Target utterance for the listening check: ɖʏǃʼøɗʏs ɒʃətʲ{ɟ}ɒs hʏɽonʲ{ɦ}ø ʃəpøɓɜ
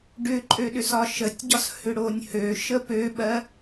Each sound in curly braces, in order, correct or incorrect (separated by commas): correct, incorrect